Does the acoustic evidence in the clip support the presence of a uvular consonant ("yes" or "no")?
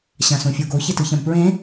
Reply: no